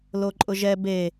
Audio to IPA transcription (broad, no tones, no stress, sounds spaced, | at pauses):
l o ǃʼ ʊ ʒ ɛ b e